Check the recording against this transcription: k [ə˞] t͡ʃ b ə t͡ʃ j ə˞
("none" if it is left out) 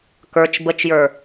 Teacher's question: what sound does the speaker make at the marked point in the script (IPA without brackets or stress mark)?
ə˞